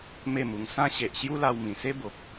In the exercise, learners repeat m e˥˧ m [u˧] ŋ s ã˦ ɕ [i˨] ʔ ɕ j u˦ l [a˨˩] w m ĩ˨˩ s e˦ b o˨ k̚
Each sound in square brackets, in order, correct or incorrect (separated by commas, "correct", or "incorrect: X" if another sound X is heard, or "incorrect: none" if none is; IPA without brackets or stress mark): correct, incorrect: e˨, incorrect: a˧